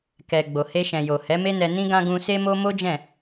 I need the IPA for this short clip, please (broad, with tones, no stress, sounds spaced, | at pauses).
k ɛ˨ ɡ͡b o˨ h e˧ ʃ ɛ̃˨ j o˨ h ɛ˨˦ m e˦ n ɛ˧ n ĩ˦ ɡ ã˦ ɡ ũ˧ s e˦ m o˦ m o˦ d͡ʒ ɛ̃˦˨